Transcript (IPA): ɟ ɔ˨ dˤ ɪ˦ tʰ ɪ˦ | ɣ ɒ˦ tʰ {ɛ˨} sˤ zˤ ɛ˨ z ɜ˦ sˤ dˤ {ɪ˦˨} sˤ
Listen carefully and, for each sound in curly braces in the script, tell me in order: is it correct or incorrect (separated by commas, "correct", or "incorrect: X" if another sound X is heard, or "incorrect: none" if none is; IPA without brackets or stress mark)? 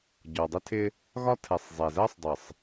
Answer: correct, incorrect: ɪ˨